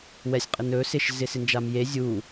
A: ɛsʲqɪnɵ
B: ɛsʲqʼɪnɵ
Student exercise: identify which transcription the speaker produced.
B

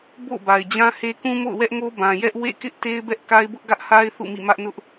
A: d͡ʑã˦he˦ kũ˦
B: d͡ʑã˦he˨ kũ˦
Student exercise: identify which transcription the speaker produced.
A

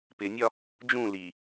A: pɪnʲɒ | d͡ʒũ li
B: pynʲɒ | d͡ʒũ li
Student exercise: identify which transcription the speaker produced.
A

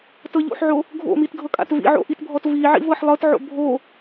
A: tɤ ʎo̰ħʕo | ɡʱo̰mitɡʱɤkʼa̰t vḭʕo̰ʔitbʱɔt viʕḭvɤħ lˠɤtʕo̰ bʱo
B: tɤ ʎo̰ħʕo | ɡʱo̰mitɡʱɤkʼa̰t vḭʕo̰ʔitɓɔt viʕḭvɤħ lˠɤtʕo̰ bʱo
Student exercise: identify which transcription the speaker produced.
A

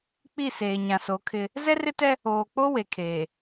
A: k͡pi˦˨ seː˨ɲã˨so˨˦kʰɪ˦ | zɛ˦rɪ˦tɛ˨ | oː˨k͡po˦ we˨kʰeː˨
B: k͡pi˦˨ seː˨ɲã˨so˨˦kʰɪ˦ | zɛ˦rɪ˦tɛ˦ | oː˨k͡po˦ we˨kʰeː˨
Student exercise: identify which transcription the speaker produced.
B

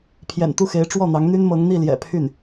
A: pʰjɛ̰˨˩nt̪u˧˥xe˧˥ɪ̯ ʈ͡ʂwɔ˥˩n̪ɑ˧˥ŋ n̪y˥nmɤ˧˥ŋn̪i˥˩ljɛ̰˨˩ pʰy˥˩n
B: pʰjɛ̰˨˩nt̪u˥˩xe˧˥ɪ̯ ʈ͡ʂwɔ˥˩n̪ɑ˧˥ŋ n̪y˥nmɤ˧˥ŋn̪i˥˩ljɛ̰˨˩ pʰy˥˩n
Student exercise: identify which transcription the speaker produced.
B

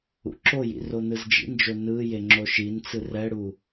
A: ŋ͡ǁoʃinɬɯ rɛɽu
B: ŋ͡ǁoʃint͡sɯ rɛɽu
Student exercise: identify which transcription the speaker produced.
B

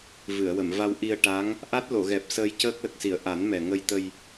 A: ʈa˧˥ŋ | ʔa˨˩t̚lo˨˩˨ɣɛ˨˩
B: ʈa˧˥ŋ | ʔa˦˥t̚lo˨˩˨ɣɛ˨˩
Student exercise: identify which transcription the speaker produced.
B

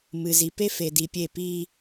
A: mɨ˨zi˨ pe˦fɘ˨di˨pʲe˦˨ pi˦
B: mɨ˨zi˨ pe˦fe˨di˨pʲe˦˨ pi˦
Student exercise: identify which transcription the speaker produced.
B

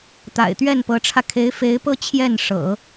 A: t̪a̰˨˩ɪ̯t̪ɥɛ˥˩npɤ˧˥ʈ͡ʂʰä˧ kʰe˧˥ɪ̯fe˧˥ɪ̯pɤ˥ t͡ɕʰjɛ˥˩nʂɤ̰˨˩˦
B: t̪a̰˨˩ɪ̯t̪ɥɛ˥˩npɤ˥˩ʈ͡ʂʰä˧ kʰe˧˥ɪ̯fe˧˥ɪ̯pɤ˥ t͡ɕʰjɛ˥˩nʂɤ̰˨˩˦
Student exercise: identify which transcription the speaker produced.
A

